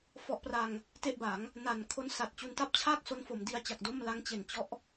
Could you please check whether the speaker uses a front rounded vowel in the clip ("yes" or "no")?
no